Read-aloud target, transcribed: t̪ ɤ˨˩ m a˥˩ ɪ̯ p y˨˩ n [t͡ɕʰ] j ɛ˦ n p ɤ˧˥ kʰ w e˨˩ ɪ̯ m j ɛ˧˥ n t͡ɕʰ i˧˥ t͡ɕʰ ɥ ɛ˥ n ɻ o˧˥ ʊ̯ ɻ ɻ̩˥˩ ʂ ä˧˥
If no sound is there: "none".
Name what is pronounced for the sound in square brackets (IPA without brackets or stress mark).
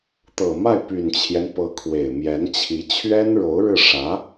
t͡ɕʰ